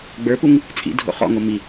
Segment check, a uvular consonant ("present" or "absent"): present